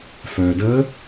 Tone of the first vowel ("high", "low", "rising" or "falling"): low